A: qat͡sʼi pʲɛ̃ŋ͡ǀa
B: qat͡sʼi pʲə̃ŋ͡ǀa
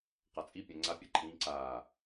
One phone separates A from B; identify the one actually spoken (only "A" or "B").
A